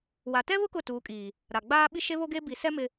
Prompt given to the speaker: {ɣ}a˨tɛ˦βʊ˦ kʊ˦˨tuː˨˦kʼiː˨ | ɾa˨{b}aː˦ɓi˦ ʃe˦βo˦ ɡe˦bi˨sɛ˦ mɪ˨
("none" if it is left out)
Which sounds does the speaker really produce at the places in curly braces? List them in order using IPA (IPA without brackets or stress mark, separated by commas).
w, ɡ͡b